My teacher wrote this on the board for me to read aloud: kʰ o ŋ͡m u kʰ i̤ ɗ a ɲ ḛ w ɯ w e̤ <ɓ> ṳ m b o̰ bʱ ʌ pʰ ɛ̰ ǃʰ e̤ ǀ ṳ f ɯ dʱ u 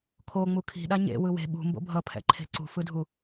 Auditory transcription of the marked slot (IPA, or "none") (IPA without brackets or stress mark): ɓ